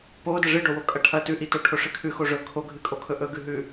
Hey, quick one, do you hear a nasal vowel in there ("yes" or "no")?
no